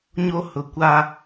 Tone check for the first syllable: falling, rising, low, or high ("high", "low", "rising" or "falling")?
high